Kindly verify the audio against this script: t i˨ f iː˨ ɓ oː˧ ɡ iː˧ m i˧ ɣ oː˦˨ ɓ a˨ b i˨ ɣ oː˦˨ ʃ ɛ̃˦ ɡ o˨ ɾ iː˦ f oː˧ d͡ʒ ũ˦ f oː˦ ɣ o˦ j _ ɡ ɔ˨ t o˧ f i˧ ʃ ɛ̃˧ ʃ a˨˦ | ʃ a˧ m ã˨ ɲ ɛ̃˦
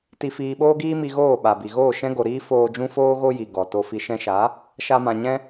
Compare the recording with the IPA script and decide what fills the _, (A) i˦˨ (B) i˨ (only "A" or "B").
B